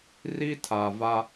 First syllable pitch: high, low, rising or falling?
high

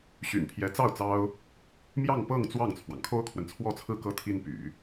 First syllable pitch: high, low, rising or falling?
low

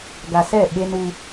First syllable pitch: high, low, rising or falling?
low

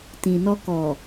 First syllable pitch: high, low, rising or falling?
low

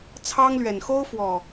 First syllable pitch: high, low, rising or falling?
high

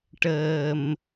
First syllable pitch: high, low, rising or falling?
low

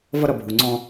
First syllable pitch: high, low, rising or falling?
high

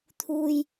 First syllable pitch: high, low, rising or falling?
low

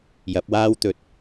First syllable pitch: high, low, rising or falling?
rising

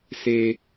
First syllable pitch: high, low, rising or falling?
high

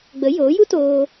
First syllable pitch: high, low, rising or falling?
rising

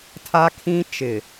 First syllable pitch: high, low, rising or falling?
high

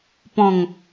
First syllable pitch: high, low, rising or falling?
low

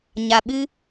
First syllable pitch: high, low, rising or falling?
low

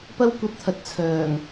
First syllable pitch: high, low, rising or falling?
high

